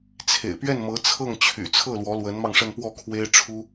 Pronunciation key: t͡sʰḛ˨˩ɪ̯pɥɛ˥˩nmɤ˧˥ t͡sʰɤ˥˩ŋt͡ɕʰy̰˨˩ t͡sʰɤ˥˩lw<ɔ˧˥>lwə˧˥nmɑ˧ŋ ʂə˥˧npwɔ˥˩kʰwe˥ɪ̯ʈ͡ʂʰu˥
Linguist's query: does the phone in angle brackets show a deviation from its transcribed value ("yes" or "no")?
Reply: no